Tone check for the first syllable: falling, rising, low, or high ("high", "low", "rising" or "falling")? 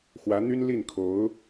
rising